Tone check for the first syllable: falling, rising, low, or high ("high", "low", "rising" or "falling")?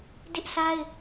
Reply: high